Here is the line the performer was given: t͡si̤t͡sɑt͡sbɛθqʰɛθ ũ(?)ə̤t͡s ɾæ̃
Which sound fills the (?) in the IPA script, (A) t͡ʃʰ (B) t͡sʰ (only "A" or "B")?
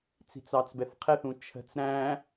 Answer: A